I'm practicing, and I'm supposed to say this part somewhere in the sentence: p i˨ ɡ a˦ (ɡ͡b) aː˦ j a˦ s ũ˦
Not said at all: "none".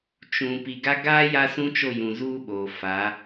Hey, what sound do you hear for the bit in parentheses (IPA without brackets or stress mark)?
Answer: ɡ